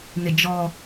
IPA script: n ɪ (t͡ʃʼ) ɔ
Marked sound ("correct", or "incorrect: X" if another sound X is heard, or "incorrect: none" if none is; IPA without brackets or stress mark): incorrect: d͡ʒ